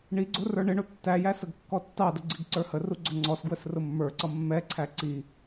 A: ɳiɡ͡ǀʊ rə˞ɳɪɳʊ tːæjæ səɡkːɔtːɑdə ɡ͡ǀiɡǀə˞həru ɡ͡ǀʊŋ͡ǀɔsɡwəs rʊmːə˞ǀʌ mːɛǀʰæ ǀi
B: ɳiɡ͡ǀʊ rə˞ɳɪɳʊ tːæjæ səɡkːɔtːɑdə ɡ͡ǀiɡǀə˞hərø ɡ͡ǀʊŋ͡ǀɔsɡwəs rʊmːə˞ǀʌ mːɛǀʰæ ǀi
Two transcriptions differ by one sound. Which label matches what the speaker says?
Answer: A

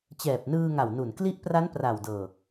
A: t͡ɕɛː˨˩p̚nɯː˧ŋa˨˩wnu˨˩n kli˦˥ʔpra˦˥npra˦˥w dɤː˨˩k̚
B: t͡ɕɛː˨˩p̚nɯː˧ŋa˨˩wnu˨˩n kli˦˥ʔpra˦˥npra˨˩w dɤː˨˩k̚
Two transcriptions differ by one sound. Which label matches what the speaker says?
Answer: B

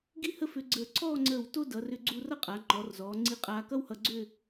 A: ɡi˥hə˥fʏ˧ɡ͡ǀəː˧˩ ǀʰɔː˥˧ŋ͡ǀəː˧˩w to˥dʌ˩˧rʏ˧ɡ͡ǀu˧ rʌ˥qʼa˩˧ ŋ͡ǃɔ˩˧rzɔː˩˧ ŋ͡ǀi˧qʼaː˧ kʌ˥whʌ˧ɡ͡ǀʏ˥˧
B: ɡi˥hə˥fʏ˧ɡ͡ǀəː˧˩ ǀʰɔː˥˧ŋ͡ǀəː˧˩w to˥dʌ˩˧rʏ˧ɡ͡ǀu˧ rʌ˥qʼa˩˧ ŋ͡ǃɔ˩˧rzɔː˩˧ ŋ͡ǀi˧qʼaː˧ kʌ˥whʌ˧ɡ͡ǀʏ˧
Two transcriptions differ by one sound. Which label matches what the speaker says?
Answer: A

